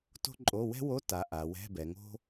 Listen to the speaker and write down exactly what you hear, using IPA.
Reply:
to̤˥ǃʼo˧˥˧ wɛ̤˥wo˧˥˧ta˩˧ ʔa˩˧wɛ̤˧˥˧bɛ˩˧ŋo̤˥

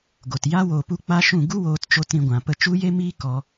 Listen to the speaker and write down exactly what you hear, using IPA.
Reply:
ɡo˨t ja˦ woː˧pu˦ k͡pa˦ʃũ˦˨ ɡu˦woː˧tt͡ʃo˧t ɾĩ˧ɡʷã˨ pə˧t͡ʃu˦je˦miː˦ kɔ˧

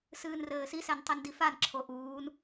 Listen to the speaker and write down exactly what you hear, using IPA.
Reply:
sɨːnrɘːsisɛn tˤindifanǁʰo ʔuːn

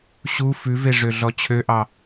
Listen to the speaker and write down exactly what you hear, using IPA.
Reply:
ɕu fʉveʐø ɮɔt͡ɕʰøʔɑ

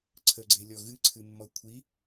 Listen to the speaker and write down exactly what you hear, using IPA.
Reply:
ǀʰəɡ͡ǀelʲɔ ɣɨǀʰɨmːɔ kʷʰi

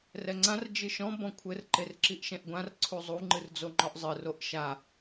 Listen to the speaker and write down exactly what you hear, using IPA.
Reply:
rɛŋ͡ǀãr d͡ʒɨʃɔ̃ bɔ̃kʷʰɘr ǃerǁiʔʃɛ̃ʔɡʷãr ǀʰuzˤu ŋ͡ǃɨrd͡zoŋ͡ǃɔʔzˤɨ roʔʃa

